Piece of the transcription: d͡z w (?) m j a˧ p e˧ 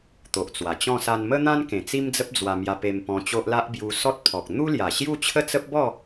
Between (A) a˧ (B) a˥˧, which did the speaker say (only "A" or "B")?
A